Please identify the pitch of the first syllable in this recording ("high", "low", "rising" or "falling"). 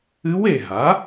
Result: rising